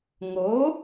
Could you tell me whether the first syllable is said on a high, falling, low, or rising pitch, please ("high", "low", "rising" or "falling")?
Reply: rising